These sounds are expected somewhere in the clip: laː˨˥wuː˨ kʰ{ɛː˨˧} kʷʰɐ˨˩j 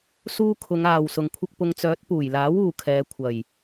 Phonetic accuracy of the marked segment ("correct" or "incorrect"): correct